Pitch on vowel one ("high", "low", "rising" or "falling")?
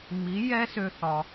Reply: rising